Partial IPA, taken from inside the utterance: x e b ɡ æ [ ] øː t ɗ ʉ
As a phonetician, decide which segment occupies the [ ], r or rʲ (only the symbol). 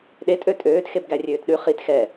rʲ